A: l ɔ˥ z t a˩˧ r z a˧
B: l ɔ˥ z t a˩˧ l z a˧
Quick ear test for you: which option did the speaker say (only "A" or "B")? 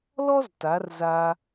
A